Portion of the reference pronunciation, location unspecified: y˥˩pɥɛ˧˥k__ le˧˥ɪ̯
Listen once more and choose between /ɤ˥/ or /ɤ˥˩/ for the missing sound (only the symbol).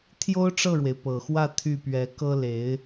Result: ɤ˥